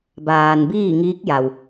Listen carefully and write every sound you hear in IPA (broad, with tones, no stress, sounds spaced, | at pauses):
b aː˩ n b iː˥˨ ŋ iː˧˥ k̚ j a˩ w